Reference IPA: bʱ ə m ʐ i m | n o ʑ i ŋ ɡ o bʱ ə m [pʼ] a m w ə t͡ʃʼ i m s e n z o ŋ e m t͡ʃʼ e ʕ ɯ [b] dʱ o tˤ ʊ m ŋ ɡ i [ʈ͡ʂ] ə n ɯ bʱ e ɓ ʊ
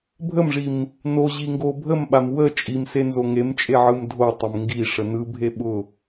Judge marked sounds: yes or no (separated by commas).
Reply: no, no, no